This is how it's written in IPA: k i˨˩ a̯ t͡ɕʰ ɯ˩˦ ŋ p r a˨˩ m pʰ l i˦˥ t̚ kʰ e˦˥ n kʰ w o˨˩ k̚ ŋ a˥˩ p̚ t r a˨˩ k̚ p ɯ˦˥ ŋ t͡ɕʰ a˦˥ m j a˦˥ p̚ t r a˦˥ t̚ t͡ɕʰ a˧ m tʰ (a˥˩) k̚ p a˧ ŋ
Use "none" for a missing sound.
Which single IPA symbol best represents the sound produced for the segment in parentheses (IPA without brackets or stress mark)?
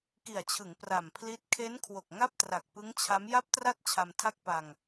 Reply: a˥˩